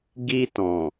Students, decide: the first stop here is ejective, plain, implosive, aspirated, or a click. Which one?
plain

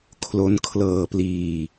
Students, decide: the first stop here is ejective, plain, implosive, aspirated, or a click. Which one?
aspirated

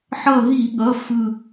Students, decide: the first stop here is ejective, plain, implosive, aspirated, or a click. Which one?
implosive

